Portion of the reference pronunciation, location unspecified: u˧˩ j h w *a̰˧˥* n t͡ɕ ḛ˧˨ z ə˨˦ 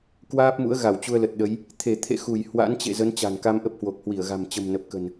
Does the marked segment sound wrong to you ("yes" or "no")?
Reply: no